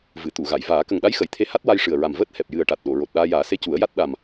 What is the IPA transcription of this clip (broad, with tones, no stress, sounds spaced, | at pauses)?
v ɨ˨˩˨ t̪ u˨˩˨ ɣ a˨˩˨ j v aː˨˩˦ k ə˨˩ ŋ ɗ a˧˥ j x ə˨˩˨ j t̪ʰ e˧ h a˦˥ t̚ w a˧ j ʂ ɨ˨˩ ə̯ ɹ a˨˩ m v əː˦˥ t̚ h ɛ˨˩ p̚ j ɨ˨˩ ə̯ ʈ a˨˩ t̚ ɗ o˨˩˨ ɹ o˨˩ t̚ ɗ aː˧ j aː˨˩˦ s e˧˥ c u˨˩˦ ə̯ j a˦˥ t̚ ɗ a˨˩ m